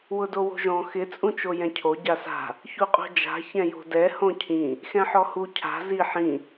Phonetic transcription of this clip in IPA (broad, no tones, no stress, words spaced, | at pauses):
wʊdowo̤ʒɔ̃ xɪ t͡sʼũt͡ʃojɛ̃cʰo ɟasa̤ | çuqʼo̤d͡ʒa̤ çɛ̃jo̤dɛ hõcʰĩ | xɛ̃ħɔhu cʰa̤ zi ħĩ